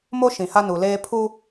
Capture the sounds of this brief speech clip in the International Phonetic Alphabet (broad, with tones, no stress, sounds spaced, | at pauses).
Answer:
m o˦ ʃ ĩ˨ h a˦ n u˨ l eː˦ pʰ u˦